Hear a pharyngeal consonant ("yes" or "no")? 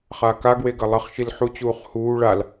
yes